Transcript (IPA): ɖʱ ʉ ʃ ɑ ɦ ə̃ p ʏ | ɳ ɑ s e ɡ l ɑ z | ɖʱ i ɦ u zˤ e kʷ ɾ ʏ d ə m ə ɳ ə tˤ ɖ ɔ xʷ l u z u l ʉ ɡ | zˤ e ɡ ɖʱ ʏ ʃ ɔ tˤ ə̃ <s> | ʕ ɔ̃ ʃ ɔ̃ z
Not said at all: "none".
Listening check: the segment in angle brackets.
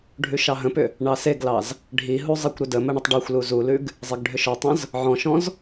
z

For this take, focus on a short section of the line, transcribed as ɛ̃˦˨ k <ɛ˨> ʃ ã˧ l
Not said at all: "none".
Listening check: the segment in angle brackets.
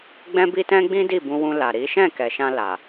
ɛ˨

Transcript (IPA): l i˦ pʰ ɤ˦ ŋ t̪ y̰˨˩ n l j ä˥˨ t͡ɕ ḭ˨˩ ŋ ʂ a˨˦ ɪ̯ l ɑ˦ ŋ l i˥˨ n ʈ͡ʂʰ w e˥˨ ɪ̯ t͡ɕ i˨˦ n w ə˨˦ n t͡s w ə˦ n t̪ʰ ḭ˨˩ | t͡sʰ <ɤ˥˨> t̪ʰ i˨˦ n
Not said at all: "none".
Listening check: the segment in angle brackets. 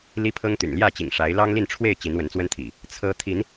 ɤ˦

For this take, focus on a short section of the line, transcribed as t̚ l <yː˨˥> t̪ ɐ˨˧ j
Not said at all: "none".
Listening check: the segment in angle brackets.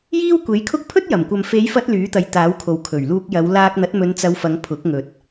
yː˨˥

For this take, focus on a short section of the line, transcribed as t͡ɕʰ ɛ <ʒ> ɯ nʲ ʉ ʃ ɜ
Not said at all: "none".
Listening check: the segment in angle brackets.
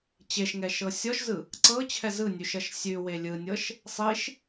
z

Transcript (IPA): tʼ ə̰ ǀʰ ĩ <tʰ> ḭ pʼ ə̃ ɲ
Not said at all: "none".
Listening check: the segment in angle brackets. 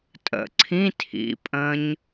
tʰ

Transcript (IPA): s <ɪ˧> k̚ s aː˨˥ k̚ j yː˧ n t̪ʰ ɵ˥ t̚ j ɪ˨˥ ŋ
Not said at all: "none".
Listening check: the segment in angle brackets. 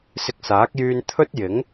ɪ˧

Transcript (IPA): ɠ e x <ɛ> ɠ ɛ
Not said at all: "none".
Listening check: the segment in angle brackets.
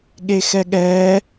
ɛ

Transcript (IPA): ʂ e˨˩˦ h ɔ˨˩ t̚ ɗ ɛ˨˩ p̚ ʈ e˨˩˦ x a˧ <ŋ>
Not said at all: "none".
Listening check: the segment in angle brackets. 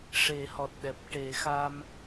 m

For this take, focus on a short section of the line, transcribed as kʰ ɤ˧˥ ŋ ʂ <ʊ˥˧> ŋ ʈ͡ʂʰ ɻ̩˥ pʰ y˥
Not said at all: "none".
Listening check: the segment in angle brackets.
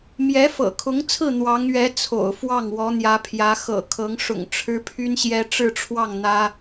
ʊ̰˨˩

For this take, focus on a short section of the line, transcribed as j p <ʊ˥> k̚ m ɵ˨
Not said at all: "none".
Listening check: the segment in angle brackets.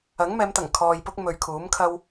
ʊ˥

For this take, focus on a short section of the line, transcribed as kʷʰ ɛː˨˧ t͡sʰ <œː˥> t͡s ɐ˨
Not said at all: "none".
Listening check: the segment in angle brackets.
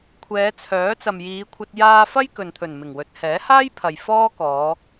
œː˨˥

